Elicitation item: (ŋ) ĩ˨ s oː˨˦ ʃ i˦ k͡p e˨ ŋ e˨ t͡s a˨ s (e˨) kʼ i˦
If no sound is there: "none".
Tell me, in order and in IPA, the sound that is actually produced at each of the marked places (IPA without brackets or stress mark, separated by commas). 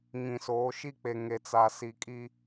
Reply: ŋ, i˨